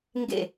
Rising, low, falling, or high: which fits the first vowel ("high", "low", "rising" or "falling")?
falling